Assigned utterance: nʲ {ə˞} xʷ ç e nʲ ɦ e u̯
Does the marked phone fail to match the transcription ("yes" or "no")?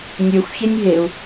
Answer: no